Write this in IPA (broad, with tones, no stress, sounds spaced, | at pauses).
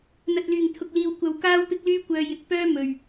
n̪ ɐ˨ t̚ l yː˨˩ ŋ t̪ʰ ʊ˨ k̚ l iː˨ w kʷ ɐ˨˧ w k aː˥ w p ɪ˥ k̚ l yː˥ kʷ œː˧ j ɪ˧ k̚ p œː˥ m ɵ˨ ɥ